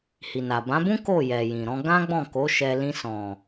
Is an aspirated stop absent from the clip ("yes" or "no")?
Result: yes